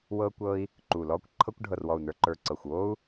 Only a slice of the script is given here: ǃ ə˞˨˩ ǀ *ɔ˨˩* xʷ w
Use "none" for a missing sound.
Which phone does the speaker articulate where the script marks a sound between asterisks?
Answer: ɤ˨˩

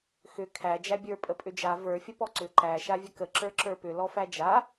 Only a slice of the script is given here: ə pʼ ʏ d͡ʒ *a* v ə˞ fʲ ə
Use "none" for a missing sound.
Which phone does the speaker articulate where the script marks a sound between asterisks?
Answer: a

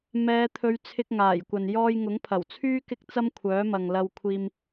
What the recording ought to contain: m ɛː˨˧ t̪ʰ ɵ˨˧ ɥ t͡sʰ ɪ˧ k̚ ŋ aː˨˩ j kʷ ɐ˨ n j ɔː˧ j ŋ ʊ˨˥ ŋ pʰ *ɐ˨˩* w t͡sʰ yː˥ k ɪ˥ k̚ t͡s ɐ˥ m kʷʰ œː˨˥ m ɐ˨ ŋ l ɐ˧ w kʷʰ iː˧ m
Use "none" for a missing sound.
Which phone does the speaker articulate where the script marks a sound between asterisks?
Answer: ɐ˨˩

